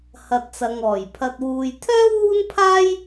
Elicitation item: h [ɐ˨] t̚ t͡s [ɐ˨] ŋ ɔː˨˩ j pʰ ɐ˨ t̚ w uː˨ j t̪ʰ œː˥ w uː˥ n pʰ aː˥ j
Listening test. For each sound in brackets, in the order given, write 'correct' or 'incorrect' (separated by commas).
correct, correct